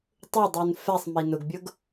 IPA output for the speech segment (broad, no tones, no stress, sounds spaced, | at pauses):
tˤ ʊ dˤ u n f ɛ sˤ m i n ʊ ɡ bʲ ʊ ɡ